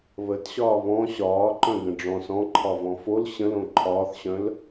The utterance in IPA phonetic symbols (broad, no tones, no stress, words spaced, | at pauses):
βətɕɒː βɔ̃ ɕɒːǃœ̃ɡə̃ ɖ͡ʐɔ̃s ɔ̃ǃʰɒvɔ̃ fol ɕə̃lõ ǃʰɒːθɕœ̃l